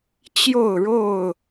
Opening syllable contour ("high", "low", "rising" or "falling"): falling